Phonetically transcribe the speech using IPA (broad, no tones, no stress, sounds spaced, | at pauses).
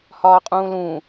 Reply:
h ɒː qʼ ũː l ũ